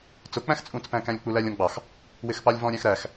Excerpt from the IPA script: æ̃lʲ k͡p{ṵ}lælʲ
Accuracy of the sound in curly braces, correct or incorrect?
incorrect